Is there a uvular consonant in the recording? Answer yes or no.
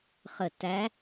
yes